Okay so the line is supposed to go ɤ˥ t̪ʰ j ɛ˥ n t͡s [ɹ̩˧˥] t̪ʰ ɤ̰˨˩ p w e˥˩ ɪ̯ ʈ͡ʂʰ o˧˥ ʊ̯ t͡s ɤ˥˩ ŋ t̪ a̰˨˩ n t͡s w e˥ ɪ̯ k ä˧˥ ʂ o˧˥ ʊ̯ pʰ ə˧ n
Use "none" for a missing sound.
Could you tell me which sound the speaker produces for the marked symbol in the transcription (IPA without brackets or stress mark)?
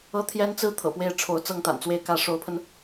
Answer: ɹ̩˥